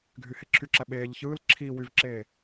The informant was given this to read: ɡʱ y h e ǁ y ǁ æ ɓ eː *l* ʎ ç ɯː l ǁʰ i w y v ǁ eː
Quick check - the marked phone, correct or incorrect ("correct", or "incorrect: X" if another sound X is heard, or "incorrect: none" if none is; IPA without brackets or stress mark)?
incorrect: none